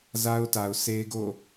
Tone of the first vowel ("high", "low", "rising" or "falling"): high